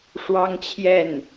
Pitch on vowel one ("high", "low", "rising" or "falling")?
high